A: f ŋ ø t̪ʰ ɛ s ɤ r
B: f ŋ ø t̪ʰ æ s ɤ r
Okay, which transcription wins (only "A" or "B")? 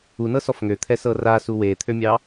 A